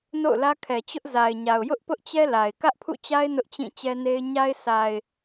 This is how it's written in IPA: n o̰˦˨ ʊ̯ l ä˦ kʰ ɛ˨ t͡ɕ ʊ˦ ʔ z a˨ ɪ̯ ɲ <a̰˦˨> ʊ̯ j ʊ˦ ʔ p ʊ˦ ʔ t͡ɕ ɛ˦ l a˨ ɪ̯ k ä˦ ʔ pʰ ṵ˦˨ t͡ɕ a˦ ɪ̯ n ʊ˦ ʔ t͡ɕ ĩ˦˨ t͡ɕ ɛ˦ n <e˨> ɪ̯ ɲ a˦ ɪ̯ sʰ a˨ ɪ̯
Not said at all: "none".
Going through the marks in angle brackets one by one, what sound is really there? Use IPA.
a˨, e˦

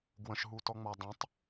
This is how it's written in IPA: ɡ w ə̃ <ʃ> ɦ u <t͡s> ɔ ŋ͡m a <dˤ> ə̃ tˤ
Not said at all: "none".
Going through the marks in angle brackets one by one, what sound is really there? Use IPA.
ʃ, t, dˤ

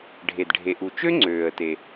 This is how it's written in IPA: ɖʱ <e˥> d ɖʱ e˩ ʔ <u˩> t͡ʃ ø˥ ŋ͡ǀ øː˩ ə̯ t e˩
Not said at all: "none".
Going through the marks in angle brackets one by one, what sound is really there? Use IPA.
e˩, u˩

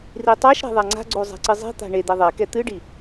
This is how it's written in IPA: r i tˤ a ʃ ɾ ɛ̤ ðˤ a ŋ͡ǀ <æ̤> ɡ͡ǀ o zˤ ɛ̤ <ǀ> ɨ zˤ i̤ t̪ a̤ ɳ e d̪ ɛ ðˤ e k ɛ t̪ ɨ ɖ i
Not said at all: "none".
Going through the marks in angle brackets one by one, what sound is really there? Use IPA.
a̤, ǀ

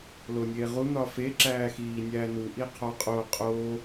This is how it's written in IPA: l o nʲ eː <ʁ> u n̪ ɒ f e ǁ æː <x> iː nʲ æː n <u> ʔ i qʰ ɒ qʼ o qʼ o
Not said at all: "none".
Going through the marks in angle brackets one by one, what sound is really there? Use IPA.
ʁ, x, u

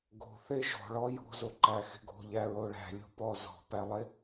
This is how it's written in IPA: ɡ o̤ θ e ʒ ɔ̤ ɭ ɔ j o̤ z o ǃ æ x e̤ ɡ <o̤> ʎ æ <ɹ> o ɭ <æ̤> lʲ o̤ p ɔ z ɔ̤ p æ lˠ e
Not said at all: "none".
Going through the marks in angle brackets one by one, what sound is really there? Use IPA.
o̤, ɹ, æ̤

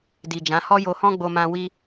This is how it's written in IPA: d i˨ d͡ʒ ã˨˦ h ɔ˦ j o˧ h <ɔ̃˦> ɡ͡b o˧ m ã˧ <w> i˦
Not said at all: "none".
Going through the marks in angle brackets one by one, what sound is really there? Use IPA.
ɔ̃˦, w

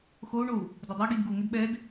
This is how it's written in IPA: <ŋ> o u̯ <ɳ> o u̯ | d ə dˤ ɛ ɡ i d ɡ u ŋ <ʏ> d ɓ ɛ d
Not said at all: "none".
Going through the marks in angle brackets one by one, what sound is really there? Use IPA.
x, ɳ, ʏ

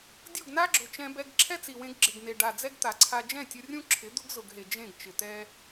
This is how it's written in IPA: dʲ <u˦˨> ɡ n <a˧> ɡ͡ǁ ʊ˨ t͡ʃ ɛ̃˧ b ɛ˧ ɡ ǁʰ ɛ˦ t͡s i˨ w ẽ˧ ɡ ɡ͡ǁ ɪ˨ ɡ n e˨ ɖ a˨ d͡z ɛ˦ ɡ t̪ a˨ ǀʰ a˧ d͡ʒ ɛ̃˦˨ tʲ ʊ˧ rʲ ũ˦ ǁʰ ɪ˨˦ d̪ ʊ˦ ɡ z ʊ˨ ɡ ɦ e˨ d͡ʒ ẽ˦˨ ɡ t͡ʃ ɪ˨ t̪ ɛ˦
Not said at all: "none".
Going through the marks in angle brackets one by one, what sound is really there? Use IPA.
u˦˨, a˦

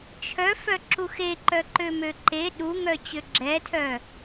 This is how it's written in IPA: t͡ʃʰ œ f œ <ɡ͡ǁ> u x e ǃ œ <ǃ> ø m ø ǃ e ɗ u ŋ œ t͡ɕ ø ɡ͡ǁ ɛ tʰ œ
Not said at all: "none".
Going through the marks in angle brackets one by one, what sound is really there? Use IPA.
ǁ, ǃ

